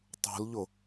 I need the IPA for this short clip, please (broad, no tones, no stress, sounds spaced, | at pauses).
tˤ ṳ l ʎ ʊ